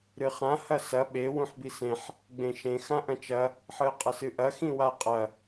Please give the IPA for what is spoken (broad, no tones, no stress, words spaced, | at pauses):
ɾɨχã hɐsɐ ɓe wũħbisẽħ | ɡ͡bẽʃẽ xãʔɐ̃t͡ʃɐ | ħɨə̯qʼɐsɨʔɐ xĩwaqʼɐ